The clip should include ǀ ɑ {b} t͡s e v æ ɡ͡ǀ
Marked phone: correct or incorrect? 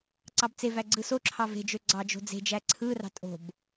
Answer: correct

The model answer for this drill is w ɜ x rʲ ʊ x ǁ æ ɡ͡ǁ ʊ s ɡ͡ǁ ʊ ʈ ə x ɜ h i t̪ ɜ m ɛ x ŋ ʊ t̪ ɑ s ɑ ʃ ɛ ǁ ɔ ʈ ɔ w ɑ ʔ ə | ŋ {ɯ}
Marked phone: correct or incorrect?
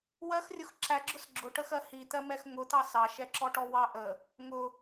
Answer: incorrect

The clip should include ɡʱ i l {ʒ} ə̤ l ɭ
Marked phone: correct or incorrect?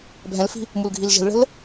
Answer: correct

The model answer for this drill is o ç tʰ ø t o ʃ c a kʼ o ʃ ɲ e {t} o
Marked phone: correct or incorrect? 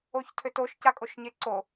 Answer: incorrect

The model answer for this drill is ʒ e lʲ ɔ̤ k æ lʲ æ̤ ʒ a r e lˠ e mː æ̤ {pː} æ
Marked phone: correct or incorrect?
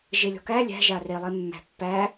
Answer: correct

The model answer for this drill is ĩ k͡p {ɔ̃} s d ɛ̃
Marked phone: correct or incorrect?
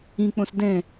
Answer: incorrect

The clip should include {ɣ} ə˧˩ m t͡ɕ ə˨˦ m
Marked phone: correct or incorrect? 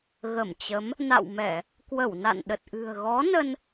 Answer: correct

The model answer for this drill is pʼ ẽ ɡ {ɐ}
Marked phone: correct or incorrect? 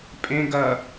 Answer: correct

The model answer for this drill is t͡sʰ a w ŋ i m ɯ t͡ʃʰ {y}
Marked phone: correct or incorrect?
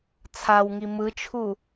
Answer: incorrect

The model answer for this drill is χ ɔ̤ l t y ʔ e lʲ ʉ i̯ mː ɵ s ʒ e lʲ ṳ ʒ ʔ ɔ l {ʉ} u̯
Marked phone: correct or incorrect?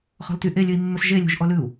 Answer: correct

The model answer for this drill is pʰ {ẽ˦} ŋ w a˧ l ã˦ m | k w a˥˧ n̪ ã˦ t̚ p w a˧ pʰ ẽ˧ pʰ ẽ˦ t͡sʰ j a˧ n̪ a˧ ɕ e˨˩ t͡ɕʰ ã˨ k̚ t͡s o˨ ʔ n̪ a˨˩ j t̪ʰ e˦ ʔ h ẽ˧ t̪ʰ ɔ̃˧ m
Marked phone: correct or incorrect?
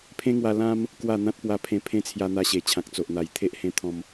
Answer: correct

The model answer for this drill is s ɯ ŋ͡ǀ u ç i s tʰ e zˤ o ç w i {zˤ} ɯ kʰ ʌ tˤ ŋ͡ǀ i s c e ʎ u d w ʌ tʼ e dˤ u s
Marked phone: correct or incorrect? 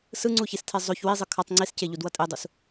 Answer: correct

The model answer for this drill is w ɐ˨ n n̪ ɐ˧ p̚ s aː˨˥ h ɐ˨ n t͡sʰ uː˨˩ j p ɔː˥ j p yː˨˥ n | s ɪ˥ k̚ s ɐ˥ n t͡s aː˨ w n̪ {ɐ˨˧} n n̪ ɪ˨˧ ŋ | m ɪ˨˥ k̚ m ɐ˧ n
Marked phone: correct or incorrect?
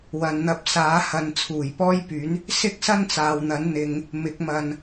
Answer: incorrect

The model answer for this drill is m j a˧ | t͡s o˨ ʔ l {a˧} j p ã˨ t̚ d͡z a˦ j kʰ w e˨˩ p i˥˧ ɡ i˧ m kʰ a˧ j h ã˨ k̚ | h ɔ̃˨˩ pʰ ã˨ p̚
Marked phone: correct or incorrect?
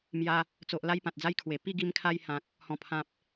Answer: correct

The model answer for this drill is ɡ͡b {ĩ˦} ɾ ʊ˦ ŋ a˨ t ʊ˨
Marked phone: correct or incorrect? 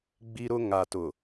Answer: incorrect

